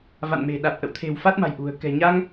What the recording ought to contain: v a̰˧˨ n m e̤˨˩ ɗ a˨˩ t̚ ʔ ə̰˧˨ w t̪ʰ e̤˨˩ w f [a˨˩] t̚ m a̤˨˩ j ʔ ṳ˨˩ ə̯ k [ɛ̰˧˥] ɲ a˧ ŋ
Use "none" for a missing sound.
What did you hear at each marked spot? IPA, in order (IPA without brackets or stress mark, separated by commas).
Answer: a˦˥, ɛ̤˨˩